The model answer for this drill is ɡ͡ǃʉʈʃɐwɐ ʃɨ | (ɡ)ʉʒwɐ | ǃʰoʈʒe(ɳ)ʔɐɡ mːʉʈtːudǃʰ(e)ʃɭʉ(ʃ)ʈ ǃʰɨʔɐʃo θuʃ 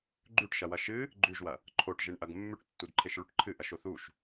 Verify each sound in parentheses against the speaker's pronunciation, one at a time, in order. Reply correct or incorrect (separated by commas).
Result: incorrect, correct, correct, incorrect